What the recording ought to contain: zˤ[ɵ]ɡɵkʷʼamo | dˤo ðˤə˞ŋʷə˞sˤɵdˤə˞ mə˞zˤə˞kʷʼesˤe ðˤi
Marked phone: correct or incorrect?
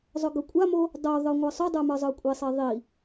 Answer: correct